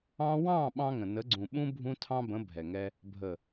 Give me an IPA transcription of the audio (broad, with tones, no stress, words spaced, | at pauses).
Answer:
ɑ̃˧wɑ̃˦˨ ɓɑ̃˦ŋə̃˨ nə˨˦ɡ͡ǀũ˨ɓũ˦ bʱũ˦tʰɑ̃˦bə̃˨˦ bʱɛ˨ŋɛ˧ | bʱə˨